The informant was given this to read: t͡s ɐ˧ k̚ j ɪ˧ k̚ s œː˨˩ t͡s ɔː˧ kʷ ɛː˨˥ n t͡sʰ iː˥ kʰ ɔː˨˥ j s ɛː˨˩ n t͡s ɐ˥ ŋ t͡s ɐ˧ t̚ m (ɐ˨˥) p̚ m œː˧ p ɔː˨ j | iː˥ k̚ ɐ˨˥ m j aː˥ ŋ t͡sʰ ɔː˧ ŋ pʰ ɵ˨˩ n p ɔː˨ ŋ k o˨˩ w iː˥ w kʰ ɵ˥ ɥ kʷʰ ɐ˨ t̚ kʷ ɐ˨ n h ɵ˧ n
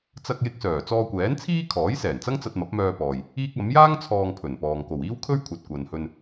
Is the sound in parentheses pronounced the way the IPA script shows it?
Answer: yes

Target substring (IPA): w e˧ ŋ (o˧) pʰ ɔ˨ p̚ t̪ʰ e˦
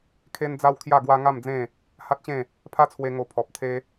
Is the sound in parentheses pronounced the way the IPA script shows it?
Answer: yes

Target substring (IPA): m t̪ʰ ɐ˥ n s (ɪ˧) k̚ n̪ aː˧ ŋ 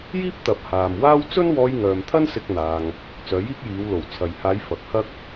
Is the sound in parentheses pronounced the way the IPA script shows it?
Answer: no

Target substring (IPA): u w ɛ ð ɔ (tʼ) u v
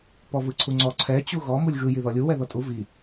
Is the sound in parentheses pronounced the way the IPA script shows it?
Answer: yes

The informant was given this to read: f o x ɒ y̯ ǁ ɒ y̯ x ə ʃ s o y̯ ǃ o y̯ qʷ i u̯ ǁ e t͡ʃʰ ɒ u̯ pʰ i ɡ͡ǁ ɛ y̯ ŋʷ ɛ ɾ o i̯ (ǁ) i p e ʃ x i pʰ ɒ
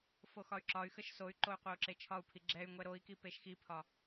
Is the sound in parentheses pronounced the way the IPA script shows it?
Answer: no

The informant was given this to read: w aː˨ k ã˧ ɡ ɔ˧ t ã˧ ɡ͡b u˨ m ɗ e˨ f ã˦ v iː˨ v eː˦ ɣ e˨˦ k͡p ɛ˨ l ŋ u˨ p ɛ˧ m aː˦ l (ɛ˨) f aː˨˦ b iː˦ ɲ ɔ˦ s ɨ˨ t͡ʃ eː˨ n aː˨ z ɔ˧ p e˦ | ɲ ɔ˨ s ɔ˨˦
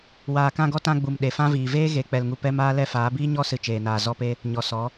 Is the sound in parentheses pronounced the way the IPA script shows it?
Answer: no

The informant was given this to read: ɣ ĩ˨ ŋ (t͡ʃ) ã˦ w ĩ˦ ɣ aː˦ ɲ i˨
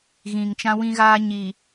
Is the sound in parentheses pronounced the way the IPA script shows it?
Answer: yes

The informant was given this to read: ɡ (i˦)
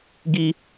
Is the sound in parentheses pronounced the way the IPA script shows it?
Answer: yes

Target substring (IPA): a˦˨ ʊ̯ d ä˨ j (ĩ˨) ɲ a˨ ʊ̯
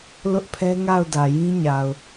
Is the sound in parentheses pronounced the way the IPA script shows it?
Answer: no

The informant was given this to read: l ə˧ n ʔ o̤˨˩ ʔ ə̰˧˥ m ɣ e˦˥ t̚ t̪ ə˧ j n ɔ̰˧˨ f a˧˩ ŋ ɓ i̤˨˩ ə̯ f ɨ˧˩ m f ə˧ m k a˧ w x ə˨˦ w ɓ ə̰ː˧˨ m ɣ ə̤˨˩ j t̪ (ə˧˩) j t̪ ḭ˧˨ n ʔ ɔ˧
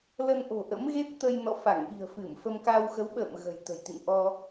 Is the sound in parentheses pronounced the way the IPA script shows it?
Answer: no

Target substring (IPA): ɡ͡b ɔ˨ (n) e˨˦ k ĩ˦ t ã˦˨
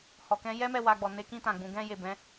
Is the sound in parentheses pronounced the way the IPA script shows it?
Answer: yes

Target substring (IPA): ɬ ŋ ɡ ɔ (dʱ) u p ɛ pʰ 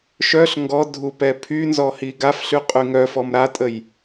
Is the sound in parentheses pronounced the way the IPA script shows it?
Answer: yes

